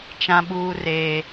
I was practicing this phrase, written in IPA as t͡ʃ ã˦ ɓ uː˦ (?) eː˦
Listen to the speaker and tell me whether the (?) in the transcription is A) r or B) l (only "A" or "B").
A